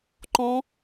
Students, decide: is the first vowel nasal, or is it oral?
nasal